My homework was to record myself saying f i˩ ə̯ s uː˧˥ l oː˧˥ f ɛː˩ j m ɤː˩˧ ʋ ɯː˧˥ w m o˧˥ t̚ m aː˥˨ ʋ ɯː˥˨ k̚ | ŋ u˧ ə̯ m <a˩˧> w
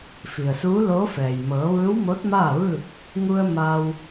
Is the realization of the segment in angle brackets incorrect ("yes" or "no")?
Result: yes